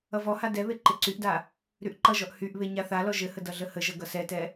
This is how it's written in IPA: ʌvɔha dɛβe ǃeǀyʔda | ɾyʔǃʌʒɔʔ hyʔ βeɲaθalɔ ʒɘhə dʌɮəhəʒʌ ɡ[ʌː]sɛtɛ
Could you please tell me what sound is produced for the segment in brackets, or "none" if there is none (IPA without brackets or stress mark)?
ʌ